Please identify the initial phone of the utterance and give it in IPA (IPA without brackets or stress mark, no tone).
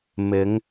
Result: m